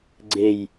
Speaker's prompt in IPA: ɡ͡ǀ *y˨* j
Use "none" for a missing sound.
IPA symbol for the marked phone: e˨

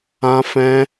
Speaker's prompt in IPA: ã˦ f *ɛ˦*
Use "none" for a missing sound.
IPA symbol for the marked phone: ɛ̃˦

